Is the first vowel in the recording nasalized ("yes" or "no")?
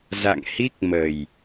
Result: no